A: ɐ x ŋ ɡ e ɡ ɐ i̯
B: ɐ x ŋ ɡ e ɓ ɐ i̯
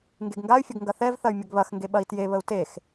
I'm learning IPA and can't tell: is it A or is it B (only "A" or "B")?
B